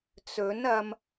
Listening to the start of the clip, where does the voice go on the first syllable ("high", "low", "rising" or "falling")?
rising